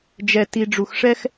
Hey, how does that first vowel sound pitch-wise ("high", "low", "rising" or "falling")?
low